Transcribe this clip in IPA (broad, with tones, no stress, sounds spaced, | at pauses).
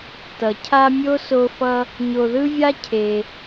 t ʌ˩ cʰ a˦ mʲ o˥ s o˦ f ʌ˦ | ɲ o˨ ð ɯ˥ vʲ a˥ cʰ e˩